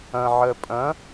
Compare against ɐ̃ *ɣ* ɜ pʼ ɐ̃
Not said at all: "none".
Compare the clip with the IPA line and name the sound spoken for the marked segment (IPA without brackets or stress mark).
ʕ